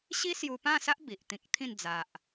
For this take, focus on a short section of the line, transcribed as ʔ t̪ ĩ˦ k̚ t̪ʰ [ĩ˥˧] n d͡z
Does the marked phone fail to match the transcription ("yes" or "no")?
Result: no